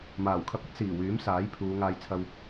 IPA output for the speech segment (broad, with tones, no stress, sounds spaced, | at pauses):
m aː˨˩ w kʰ ɐ˧ p̚ ɐ˥ t̚ s iː˨˩ w yː˨˥ m s aː˨˥ j pʰ uː˨˧ ŋ aː˧ j t͡sʰ ɐ˧ w